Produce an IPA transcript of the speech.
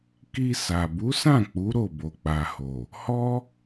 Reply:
k i˧ s a˨ b u˨˦ s ã˦˨ k͡p u˨˦ ɾ o˦˨ b o˨ k͡p a˨ h o˨ | h ɔ˦

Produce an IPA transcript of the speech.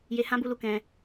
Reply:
j e˧ h ã˦ b u˧ l u˨ k ɛ̃˧

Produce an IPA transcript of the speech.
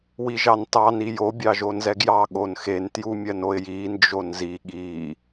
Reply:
w i ʒ ɑ n t ɑ n i j o bʲ ɑ ʒ o n z ɛ ɡ j ɑ ɠ o n x e n t j u mʲ ɜ n o ɪ̯ j i n d͡ʒ o n z i ɠ i

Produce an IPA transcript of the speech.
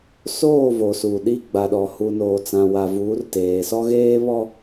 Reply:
s oː˦˨ v o˨ s uː˨ ɗ i˦˨ ɡ͡b a˨ ɗ ɔ˨ h u˨ n oː˨ t͡s ã˨ w a˨ v uː˨˦ r t eː˨ s ɔ˦ ɣ eː˦ β ɔ˦

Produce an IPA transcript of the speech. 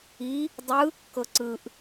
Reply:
i | dˤ ɯ | k ɤ ǀ ɯ ʔ

